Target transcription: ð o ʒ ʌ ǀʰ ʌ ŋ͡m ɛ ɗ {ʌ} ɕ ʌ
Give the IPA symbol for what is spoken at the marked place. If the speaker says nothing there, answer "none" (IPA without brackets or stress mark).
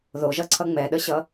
ə